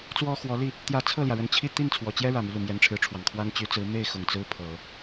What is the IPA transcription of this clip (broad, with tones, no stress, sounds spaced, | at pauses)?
t͡s w ɔ˥ x w ɔ˧˥ l i˥˩ | t̪ j ä˧˥ t͡sʰ ɤ˥˩ l j ä˩ ɻ ə˧˥ n t͡ɕʰ i˥˧ t̪ i˥˩ n t͡sʰ w ɔ˨˩ t͡ɕ j ɛ˥ ɻ ä˨˩ m y˦ l u˨˩ m j ɛ˧˥ n ʈ͡ʂʰ ɻ̩˧˥ ʈ͡ʂʰ w ɑ˨˩ ŋ kʰ w a˥ n t͡ɕ y˧˥ t͡s ɹ̩˧˥ m e˥˩ ɪ̯ x ʊ˨˩ ŋ t͡s ɹ̩˥ pʰ ɤ˨˩˦